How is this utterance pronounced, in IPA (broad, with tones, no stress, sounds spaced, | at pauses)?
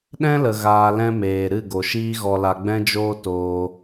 ɗ ɛ̃˦ l ə˨ ɣ aː˧ l ɛ̃˦ m eː˨ ɾ ɨ˦˨ ɡ o˨ ʃ iː˦ ɣ ɔ˧ l a˧ ɡ͡b ɛ̃˦ d͡ʒ oː˦ t oː˧